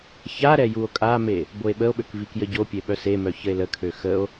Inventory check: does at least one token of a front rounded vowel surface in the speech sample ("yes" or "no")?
yes